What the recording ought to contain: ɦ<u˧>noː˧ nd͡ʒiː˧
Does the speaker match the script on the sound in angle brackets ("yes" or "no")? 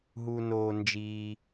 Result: yes